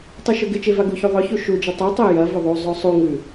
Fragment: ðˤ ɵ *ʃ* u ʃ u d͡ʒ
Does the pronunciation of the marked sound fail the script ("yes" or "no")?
yes